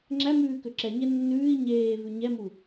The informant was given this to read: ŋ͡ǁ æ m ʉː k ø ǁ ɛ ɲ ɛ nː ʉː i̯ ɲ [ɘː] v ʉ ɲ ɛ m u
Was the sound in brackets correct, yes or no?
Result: no